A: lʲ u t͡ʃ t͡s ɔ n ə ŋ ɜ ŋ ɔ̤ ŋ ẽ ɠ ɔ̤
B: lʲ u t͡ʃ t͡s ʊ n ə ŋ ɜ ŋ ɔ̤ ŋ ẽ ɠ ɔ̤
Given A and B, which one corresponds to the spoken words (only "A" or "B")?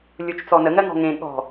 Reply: A